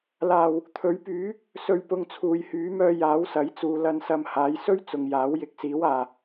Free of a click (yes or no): yes